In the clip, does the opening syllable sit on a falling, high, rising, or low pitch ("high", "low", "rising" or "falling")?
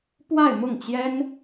falling